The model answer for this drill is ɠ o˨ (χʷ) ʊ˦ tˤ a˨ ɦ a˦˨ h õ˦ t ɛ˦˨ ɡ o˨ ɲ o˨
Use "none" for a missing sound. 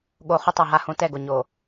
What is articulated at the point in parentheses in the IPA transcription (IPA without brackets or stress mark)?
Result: χ